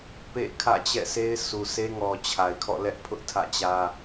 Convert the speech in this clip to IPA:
pḛ˦˨kʰä̰˦˨t͡ɕɛ̰˦˨ sʰe˦ɪ̯sʰu˨se˦ŋɔ˨ t͡ɕʰa˨ɪ̯kʰɔ̰˦˨lɛ˦ʔ pʰʊ˦ʔtʰä̰˦˨t͡ɕä˦

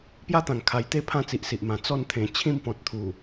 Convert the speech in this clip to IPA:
pja˦t̪ã˨˩ŋkʰa˨˩jt̪e˥˧ pʰã˥˧t͡si˨ʔsi˨ʔmã˨˩ t͡sɔ˥˧nt̪ʰẽ˨˩ t͡ɕʰĩ˥˧mpɔ̃˨t̚ t̪ʰu˨˩

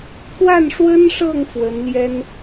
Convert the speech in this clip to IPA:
kwa˥˩nʂwə˥nʂɤ˥˩ŋ fwə˧˥nljɛ˥n

